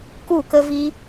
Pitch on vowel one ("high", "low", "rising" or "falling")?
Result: falling